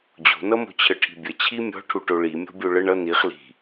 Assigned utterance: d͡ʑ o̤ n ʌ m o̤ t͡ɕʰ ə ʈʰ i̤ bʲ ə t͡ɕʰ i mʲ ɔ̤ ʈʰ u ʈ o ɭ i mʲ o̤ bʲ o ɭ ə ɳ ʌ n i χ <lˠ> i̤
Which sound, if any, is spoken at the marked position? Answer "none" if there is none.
l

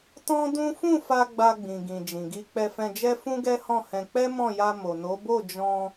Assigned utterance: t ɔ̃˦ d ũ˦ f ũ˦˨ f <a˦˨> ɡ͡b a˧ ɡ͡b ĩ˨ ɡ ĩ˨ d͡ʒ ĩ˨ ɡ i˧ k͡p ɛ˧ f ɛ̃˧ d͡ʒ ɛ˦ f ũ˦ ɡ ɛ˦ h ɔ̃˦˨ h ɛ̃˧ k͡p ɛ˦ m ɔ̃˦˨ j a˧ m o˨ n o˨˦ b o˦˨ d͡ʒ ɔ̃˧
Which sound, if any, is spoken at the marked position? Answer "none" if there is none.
a˧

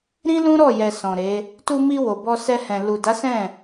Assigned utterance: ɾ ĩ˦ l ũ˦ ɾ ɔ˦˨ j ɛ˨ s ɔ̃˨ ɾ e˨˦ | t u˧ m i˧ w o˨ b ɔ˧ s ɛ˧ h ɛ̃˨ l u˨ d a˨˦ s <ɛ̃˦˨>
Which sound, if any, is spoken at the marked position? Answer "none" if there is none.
ɛ̃˦˨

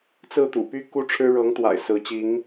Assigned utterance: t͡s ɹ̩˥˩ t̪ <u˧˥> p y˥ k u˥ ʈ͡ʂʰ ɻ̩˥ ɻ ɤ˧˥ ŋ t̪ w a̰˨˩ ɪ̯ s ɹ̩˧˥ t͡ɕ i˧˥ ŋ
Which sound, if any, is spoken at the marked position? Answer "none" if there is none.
ṵ˨˩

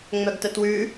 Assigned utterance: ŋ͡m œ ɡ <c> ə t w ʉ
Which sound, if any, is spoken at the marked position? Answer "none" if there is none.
t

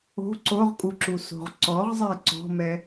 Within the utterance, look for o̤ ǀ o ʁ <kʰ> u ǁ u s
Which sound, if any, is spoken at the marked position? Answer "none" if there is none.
kʼ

